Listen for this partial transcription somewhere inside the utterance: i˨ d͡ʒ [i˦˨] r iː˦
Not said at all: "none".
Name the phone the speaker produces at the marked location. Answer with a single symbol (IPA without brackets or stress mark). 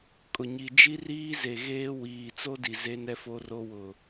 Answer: i˦